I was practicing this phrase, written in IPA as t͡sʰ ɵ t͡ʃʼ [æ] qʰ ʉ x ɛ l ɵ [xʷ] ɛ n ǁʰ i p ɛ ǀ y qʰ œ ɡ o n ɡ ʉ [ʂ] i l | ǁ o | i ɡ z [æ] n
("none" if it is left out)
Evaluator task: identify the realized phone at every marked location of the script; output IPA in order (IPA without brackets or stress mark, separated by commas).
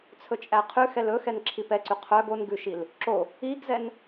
æ, x, ʃ, ɛ